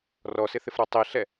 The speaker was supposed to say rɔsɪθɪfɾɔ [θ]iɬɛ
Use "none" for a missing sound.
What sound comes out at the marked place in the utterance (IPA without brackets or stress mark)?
tˤ